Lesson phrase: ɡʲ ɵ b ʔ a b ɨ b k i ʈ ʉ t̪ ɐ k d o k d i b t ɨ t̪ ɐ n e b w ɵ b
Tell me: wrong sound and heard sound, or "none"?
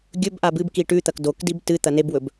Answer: none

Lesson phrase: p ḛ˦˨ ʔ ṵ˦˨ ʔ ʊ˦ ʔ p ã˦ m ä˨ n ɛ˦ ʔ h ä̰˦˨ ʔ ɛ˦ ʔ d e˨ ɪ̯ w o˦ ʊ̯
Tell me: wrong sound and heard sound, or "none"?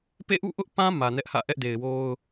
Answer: none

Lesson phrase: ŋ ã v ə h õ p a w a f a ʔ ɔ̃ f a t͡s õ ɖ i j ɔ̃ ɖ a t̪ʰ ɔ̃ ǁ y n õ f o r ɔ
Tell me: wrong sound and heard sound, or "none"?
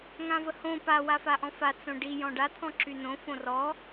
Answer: o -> õ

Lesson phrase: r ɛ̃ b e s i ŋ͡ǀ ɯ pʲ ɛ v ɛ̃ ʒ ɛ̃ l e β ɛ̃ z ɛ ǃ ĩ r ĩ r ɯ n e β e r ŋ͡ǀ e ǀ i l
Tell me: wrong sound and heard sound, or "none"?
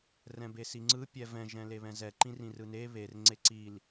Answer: none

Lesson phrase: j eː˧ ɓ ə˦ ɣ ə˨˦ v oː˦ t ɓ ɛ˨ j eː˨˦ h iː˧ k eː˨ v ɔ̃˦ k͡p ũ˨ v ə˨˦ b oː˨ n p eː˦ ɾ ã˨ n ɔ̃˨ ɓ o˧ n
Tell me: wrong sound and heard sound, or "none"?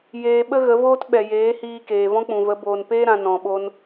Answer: none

